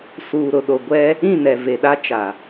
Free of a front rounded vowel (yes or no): yes